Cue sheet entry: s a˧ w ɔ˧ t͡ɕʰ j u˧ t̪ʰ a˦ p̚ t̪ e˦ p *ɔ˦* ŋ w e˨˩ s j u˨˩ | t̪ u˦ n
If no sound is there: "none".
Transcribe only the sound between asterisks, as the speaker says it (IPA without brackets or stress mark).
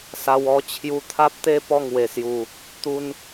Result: ɔ˥˧